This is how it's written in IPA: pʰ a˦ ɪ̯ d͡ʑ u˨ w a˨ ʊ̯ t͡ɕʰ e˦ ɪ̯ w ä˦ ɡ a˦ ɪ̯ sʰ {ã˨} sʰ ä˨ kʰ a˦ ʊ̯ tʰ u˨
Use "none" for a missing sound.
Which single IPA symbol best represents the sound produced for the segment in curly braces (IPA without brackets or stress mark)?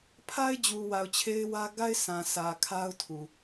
ã˨